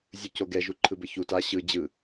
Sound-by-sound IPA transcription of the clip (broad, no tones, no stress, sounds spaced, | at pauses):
zʲ u c o ɡ ɛ ʒ u ǃʰ ɯ b ə ç u t a ɕ ɯ d͡ʑ ɯ